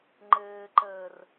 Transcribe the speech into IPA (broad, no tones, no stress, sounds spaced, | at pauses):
ŋ͡ǃ ɘː ǃ əː r